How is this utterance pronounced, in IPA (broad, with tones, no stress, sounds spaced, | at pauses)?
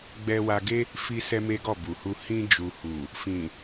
ɡ͡b ɛ˧ w a˧ ɡ e˦ | f i˦ s ɛ˦ m e˦ ɡ ɔ˦˨ b u˨ h u˧ h ĩ˧ d͡ʒ u˨ h u˨ | f ĩ˨